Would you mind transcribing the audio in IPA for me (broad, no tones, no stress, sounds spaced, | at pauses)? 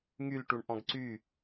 ŋ y l ʈ u ɳ ʔ ɔ̃ ɡ ǀ y